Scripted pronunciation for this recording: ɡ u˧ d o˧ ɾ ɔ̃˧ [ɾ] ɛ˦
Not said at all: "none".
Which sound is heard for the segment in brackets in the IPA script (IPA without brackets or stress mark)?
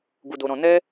n